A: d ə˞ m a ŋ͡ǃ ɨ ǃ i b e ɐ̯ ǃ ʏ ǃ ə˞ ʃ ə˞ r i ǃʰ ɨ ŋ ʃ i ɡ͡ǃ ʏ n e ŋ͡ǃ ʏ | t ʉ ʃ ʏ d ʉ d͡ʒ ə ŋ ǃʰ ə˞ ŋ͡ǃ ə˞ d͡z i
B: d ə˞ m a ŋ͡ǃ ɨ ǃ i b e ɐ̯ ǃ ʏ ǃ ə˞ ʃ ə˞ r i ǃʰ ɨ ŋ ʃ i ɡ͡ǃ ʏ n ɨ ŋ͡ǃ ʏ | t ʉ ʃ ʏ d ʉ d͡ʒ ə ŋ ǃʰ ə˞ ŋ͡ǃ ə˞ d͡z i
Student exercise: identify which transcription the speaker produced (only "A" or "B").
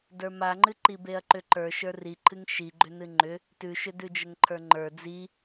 B